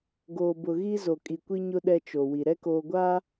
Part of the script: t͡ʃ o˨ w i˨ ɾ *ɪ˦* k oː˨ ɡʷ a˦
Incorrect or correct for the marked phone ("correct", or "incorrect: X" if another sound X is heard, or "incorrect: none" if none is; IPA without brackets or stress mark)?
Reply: incorrect: ɛ˦